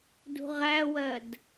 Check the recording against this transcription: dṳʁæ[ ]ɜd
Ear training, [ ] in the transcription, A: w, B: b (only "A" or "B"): A